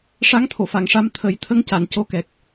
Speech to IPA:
ʂ a˧˥ ŋ t̪ʰ o˨˩˨ f a˨˩˨ ŋ ʂ a˧ m t̪ʰ ə˨˩˦ j t̪ʰ ə˧˥ ŋ c a˨˩˨ n c o˧˥ k ɛ˨˩ k̚

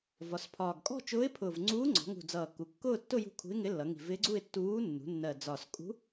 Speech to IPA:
v ɒ˩˧ s pʰ ɒː˨˩ ɡ kʼ ɔ̤˥˧ t͡ʃ ʊː˧˥ ɪ̯ pʰ ʊː˨˩ v ŋ͡ǀ uː˧˥ ŋ͡ǀ ɔ̤˩˧ ŋ ṳ˨˩ d͡z ʌː˨˩ k u˩˧ kː ʊː˥˧ tː ʊ˥˧ j ṳ˧˥ kʰ ṳ˧˥ ɪ̯ ŋ ɪ˧˥ lː ʌ˩˧ ŋ i̤˨˩ v ɪː˧˥ ɡ͡ǀ u˥˧ ɪ̯ tː uː˧˥ nː ṳ˩˧ nː ɜ˨˩ d͡z ɒ˨˩ s kʼ ṳ˧˥

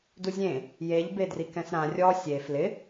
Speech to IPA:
d u zʲ ẽ | j e ʎ b e d r i k ɛ̃ s ɾ ã rʲ ɔ sʲ e f l ɪ

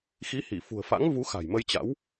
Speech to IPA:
x i˨˦ h i˧˩ f ṳ˨˩ ə̯ f a̰˧˥ ŋ v u˨˦ x a̤˨˩ j m ə˧ j t͡ɕ a̰˧˥ w

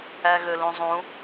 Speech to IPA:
æ ɣ ø l ũ zˤ ũ

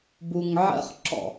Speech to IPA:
b u ŋ ʕ ə̰ χ ǁ ɔ̰

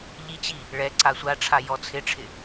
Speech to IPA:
ʎ i t͡ɕ i | ɭ ɛ ǀ a sʷ a ʈ͡ʂʰ a j ɔ t͡sʰ ɪ ʈ͡ʂʰ ɪ

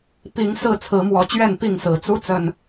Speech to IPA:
p i˨˦ ŋ s ɹ̩˥˨ t͡sʰ ɹ̩˨˦ m w ɔ˨˦ t͡ɕ ɥ ɛ˥˨ n p i˥˨ ŋ s ɹ̩˨˩ t͡s u˦ t͡s ə˨˩ n

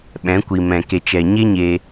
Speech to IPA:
ɓ ɛ̃˨˦ kʷ i˨ m ɛ̃˨ k e˨ t͡ʃ ɛ˨ ɲ e˦ ɲ e˧

